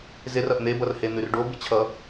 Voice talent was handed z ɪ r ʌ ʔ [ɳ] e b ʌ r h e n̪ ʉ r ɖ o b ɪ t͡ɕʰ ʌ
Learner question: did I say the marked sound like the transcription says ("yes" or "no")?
no